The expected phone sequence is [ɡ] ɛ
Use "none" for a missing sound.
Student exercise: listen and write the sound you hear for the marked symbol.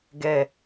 ɡ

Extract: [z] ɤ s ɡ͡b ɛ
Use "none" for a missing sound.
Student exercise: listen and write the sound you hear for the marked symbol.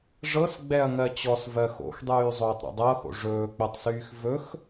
ʐ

